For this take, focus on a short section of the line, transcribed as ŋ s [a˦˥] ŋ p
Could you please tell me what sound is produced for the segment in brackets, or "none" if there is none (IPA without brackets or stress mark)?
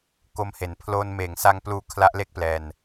a˦˥